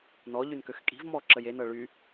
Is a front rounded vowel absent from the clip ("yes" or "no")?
no